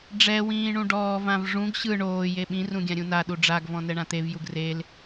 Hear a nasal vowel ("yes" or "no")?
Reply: yes